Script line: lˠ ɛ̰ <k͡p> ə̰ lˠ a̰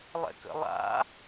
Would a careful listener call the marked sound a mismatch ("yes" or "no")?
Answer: yes